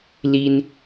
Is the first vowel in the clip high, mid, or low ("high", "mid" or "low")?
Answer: high